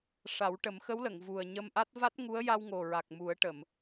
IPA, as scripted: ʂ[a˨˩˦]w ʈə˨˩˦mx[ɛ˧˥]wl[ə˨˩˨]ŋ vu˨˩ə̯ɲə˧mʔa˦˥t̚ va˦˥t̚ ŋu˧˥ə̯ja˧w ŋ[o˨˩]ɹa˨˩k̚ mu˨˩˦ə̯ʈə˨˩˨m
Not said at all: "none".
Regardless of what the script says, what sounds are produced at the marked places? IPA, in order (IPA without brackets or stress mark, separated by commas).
a˨˩˦, ə˧˥, ə˨˩˨, o˨˩